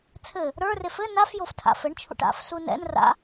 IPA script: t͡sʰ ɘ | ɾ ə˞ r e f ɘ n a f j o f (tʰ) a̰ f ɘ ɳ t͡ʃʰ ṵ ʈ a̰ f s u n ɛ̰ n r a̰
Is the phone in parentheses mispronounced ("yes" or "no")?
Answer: no